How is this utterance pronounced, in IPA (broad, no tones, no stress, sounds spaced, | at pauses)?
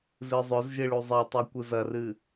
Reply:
z ɨ zˤ ɵ z ʒ ɨ ɭ u zˤ e tˤ ʉ kʷ ɨ z ɐ r ɨ